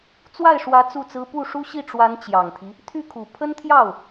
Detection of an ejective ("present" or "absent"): absent